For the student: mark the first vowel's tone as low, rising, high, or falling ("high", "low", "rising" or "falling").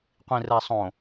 low